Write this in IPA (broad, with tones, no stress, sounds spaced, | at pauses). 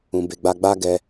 ũ˨ b e˨ ɡ͡b a˧ ɡ͡b a˦ ɡ ɛ˧